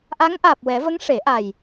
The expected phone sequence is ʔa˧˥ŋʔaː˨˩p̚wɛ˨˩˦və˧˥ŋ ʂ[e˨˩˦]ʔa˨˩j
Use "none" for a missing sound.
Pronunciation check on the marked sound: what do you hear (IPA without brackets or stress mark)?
e˨˩˦